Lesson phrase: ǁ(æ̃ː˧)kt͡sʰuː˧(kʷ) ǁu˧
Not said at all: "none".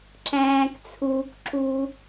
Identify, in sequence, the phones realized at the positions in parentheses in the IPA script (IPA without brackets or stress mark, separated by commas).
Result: æ̃ː˧, k